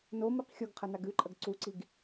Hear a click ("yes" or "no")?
yes